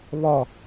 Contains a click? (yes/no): no